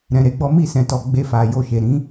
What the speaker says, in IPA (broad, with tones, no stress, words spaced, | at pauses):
ɾɛ̃˨ɾe˨˦ɡ͡bɔ˦ mi˦˨sɛ̃˨tɔ˨ ɡ͡be˧fa˨jo˧ ʃe˨ɾĩ˨˦